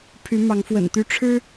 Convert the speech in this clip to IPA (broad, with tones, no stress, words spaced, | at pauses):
pʰy˨˦mɑ˨˦ŋfwə̰˨˩nt̪y˦ ʈ͡ʂʰɻ̩˦